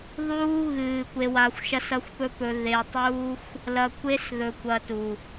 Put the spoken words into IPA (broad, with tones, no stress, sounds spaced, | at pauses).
ðˤ uː˦ ɣ ɨː˨ kʷ e˧ w a˧ xʷ ʃ ɐ˦ s ɐ˦ xʷ p ɵ˦ p ɵ˧ ð e˧ tˤ uː˦ xʷ | l ɐ˧ kʷ e˦ s ð ɵ˧ kʷ ɐ˧ t u˨